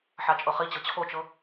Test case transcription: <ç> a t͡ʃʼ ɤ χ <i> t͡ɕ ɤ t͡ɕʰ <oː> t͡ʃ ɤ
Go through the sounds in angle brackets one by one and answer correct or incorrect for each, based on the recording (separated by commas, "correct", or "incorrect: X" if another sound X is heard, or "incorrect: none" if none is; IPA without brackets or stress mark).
incorrect: ħ, correct, incorrect: o